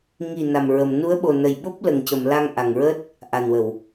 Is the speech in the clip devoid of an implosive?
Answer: no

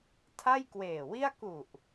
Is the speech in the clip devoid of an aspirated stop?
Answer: no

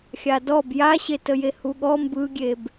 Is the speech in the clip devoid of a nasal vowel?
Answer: yes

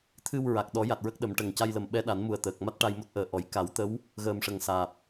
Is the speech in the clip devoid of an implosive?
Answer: no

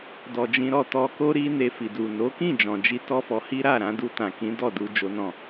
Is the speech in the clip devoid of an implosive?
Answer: yes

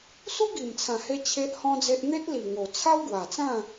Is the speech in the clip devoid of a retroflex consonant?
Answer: yes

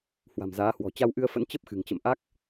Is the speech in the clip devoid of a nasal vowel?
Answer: yes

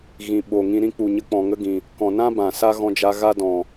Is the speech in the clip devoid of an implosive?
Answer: no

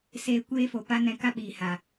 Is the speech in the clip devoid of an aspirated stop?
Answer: yes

